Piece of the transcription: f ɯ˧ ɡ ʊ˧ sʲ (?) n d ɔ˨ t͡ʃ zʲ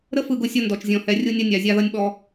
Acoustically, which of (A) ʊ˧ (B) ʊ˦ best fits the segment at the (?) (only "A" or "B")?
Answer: A